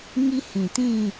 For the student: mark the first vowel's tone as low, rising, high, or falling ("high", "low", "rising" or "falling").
high